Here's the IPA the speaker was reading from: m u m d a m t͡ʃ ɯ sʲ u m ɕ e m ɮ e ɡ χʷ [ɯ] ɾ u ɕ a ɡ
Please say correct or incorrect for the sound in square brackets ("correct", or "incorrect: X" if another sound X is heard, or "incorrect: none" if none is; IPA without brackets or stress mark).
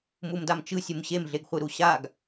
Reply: correct